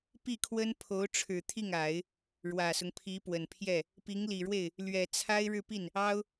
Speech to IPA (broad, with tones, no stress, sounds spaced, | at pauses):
p i˥˩ kʰ w ə˥ n pʰ o˧˥ ʊ̯ ʈ͡ʂʰ ɻ̩˨˩ t̪ʰ i˥˩ ŋ a˨˩˦ ɪ̯ | ɻ w ä˨˩ s ʊ˦ ŋ pʰ i˧˥ p w ə˨˩ n pʰ j ɛ˥˩ | p i˧˥ ŋ l i˨˩ ɻ w e˥˩ ɪ̯ | l ɥ ɛ˨˩ t͡sʰ a˥ ɪ̯ ɻ ɻ̩˥˧ p i˥˩ n | ɑ˥ ʊ̯